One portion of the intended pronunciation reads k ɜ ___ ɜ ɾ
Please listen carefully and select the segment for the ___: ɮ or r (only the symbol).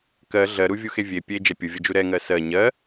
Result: ɮ